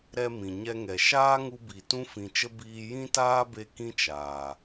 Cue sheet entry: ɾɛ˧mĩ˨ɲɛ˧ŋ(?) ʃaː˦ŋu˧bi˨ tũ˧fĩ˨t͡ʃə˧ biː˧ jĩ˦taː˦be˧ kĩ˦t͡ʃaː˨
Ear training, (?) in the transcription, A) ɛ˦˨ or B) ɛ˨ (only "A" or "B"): B